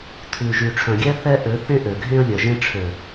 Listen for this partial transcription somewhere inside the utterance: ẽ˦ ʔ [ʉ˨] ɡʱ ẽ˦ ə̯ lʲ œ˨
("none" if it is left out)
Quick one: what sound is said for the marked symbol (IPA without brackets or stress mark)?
ø˨